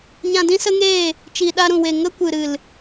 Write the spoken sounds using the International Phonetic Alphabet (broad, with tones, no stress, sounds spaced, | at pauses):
ɲ ã˧ d ĩ˦ s ə˦ ŋ eː˦˨ | t͡ʃ i˨ ɗ a˧ ɾ ũ˨ w e˨ ŋ ə˦ kʷ ɨ˨ ɾ ɨ˨ l